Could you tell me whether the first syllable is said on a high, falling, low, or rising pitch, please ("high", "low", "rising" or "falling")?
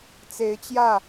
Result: rising